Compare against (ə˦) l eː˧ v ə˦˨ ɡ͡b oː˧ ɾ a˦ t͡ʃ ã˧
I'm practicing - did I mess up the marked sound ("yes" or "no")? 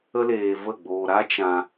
no